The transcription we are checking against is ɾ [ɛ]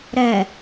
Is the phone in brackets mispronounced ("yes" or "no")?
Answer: no